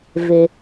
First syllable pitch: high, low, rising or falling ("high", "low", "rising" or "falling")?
low